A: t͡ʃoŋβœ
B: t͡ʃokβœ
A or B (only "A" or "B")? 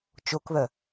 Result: B